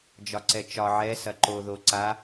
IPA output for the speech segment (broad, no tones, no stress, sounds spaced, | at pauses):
d͡ʒ ɒ ǀ ɛ t͡ʃ ɒ ʕ ɛ s ɐ ǃ o ð o ǀ a